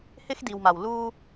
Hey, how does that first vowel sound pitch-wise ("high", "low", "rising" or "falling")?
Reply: high